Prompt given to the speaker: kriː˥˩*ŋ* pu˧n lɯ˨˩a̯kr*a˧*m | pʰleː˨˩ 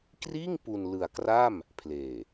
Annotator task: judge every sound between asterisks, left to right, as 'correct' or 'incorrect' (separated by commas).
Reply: correct, incorrect